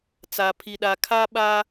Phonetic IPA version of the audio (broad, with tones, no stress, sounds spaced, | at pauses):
t͡s a˨ pʰ i˨ ɗ a˨ kʰ a˦ ɓ a˦